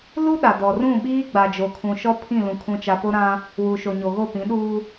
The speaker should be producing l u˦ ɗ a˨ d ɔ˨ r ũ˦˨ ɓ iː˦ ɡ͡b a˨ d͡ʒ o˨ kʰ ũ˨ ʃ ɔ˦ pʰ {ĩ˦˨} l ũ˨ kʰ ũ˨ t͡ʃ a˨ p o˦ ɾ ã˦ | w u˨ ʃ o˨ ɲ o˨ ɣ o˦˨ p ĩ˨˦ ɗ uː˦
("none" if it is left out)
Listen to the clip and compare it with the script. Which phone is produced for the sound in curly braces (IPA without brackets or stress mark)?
ĩ˦˨